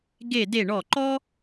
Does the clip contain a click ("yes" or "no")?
yes